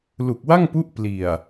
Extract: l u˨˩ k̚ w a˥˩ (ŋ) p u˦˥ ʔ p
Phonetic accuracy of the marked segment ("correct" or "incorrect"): correct